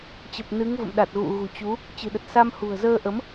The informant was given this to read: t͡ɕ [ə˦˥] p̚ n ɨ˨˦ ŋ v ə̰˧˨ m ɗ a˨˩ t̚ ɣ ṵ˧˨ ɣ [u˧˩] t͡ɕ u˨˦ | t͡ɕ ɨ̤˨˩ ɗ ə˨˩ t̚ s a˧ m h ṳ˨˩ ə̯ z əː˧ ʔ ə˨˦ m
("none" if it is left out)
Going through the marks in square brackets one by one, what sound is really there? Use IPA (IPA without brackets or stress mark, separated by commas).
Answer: ə˨˩, ṳ˨˩